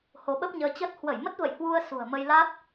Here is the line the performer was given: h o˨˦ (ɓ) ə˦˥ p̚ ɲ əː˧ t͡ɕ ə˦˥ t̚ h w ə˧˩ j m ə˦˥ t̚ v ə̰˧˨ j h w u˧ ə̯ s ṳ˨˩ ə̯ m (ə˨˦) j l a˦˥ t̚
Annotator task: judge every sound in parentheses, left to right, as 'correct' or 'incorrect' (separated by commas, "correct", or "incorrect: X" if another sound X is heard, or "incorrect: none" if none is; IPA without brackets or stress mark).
correct, incorrect: ə˧